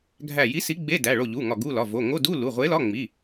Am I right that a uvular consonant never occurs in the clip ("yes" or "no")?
no